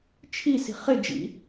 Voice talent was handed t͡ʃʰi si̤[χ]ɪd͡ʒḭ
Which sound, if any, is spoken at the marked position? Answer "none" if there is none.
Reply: χ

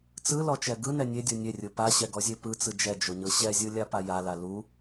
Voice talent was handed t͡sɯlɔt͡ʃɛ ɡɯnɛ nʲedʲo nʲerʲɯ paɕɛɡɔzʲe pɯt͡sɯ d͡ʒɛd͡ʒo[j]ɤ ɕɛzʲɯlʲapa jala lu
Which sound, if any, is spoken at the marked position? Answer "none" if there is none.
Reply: ɲ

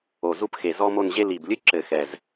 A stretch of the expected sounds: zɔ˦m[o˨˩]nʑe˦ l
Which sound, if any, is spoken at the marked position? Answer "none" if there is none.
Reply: o˦˨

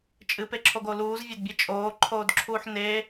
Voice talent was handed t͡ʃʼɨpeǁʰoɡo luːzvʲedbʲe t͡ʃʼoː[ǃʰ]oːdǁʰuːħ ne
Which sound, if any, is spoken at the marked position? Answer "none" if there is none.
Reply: ǃʰ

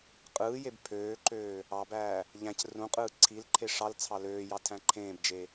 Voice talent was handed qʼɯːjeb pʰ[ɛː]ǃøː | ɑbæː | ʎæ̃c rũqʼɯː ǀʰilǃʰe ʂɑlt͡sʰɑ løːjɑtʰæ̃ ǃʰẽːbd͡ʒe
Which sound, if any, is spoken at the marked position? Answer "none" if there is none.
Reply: øː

